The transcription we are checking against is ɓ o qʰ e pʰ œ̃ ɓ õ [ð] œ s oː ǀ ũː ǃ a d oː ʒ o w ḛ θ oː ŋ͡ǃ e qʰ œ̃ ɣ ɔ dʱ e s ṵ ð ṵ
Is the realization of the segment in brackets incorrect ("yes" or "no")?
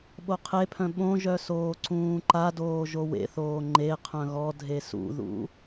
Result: yes